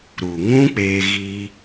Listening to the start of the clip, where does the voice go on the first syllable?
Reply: low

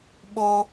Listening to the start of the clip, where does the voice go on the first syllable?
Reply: high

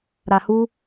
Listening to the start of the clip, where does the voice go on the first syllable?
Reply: low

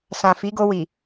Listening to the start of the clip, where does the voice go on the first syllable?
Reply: low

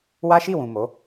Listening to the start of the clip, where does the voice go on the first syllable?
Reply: high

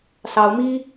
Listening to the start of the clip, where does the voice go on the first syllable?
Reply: rising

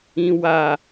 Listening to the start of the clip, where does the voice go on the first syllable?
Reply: high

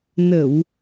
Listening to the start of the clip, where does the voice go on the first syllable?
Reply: low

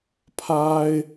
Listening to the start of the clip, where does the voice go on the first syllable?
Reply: high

